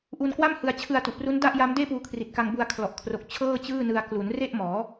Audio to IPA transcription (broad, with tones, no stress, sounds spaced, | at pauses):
ʔ u˧ n k w a˥˩ m h ɯ˧ a̯ t͡ɕʰ ɯ˧ a̯ t u˨˩ ʔ p r u˦˥ n d a˥˩ ʔ j a˦˥ m d eː˥˩ p uː˧ kʰ r i˨˩ t̚ k a˧ ŋ b u˧ a̯ kʰ l ɔ˨˩ ʔ kʰ r o˨˩ k̚ t͡ɕʰ ɤː˥˩ t͡ɕ ɯː˥˩ n ɯ˧ a̯ k l u˩˦ n r e˥˩ ʔ m ɔː˩˦